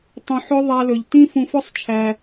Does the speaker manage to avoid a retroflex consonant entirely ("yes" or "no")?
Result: yes